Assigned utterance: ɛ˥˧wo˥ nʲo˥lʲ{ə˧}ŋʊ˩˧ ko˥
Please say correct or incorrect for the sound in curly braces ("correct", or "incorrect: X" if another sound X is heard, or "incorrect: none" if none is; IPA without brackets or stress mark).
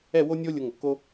incorrect: ʊ˧